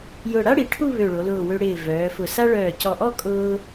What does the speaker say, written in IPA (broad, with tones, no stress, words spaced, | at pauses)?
jʊ˧˩ɽa˥ɽi˩˧ʈʰu˥˧ βø˧˩ɭo˩˧lʊː˧˩ wø˧ɽɪː˧˩ vœː˩˧fʊ˧˩ sa˥ ɭœː˧˩cɔ˧˩ʔɔ˥˧ kʼʊː˥